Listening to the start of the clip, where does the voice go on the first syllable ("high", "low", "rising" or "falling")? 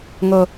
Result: low